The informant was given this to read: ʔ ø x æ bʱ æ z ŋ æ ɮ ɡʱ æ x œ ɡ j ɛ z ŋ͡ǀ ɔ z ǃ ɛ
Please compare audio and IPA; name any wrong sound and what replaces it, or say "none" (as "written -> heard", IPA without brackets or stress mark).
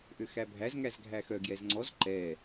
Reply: ɮ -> z